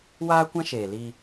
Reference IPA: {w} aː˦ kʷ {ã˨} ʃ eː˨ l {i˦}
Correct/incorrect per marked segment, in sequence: correct, incorrect, correct

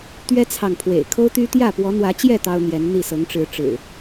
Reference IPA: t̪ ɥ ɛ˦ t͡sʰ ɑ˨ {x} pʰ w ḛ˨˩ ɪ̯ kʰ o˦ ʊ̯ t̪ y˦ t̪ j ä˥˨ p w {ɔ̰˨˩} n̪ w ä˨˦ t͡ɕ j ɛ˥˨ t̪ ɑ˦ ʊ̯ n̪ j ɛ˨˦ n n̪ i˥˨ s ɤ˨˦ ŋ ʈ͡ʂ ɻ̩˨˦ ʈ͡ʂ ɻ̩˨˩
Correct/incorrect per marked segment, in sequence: incorrect, incorrect

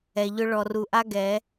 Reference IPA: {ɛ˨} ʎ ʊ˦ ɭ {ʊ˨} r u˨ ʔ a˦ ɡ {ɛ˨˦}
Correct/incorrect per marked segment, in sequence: correct, incorrect, correct

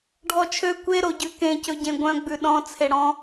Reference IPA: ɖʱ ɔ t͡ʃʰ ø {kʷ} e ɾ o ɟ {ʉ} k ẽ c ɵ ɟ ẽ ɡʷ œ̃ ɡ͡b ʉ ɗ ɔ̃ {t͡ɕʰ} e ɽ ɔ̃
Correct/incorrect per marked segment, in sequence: correct, correct, incorrect

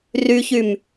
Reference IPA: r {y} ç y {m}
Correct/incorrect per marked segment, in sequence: correct, correct

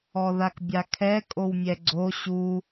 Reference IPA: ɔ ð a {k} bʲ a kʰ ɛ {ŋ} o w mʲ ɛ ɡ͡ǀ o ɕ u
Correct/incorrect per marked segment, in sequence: correct, incorrect

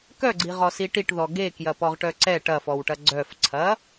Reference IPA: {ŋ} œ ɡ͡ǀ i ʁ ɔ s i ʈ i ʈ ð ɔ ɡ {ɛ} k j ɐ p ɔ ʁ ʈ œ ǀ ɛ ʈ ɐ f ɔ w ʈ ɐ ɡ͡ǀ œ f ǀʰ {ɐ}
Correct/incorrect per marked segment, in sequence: incorrect, incorrect, correct

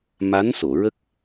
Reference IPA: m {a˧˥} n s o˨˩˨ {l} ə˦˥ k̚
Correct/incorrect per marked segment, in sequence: correct, incorrect

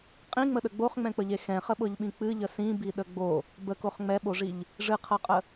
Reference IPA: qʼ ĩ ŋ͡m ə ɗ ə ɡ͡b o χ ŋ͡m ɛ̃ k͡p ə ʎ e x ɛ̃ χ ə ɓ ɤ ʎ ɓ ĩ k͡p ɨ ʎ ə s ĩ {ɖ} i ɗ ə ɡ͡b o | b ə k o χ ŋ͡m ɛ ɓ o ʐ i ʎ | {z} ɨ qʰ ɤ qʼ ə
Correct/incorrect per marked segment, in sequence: incorrect, incorrect

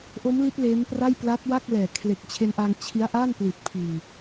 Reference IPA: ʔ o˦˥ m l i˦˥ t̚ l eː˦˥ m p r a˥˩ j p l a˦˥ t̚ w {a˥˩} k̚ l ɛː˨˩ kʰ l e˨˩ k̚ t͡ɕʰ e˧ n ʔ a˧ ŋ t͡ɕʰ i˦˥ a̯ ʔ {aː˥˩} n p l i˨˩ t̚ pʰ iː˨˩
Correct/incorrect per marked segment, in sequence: correct, correct

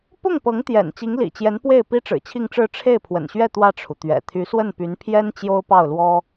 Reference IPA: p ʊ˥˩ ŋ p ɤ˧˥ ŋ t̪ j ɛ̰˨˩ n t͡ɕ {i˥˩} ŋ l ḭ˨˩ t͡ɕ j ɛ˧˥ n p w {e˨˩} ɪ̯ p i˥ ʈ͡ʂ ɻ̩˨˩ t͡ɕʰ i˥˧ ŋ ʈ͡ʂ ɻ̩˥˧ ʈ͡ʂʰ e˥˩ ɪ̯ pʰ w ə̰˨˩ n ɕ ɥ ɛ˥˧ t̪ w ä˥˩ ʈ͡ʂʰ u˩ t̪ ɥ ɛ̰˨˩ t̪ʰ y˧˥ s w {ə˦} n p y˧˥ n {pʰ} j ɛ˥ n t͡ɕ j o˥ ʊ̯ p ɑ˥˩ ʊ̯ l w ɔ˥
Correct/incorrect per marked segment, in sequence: incorrect, incorrect, incorrect, correct

